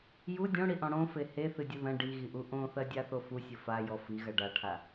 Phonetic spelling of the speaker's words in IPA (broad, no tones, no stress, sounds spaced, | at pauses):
j u dʲ õ ɽ i ʔ ɔ̃ ɽ õ f e h e θ ɨ dʲ ɘ ð ɐ̃ ɖ i ɣ i ʔ u ʔ õ θ ɐ dʲ a θ o f u sʲ ɘ f a j ɔ f i ɣ ɐ ɖ a ʈʰ a